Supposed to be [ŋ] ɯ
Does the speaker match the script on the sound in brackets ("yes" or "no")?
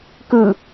no